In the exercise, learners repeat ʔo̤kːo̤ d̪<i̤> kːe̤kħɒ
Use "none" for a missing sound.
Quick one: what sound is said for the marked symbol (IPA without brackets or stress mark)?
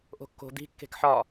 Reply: i̤